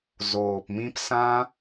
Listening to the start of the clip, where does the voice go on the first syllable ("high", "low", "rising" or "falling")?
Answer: low